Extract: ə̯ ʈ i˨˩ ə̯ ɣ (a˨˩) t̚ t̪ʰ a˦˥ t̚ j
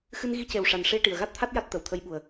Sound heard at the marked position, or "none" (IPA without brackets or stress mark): a˦˥